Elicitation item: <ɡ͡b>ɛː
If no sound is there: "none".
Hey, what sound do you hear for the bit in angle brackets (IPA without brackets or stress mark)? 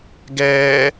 ɡ